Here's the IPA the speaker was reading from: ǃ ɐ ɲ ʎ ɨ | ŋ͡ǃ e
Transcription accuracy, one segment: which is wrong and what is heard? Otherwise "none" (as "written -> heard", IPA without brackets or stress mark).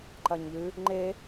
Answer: none